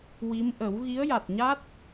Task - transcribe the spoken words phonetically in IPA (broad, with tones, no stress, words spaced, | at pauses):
wi˧˥m ʔə˨˩˦w ɣi˧˥ə̯ja˨˩t̚ɲa˦˥t̚